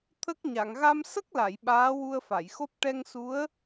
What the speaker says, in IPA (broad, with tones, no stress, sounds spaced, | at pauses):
t̪ʰ ə˦˥ k̚ ɲ a˨˩˨ ŋ ɣ a˧ m s ə˦˥ k̚ l a˨˩˨ j ɓ aː˧˥ w u˧ ə̯ f a˨˩˨ j x o˦˥ p̚ ʈ ɛ˧ ŋ s u˧˥ ə̯